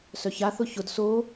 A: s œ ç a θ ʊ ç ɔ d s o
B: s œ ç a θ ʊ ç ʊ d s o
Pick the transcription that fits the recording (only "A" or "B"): B